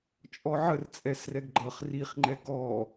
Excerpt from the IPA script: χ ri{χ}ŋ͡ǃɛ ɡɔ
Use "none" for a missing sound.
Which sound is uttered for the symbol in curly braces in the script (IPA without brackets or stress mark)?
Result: χ